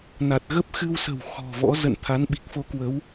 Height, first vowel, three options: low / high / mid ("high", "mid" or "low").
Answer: low